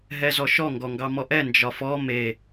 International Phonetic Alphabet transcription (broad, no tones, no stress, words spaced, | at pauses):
ɦɛzɔʃɔ ŋɡɔŋɡɑmɔʔɛ nd͡ʒɒfɔ me